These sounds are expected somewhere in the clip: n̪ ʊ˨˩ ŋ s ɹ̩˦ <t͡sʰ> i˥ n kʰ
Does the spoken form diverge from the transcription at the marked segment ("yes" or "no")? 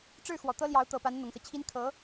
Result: yes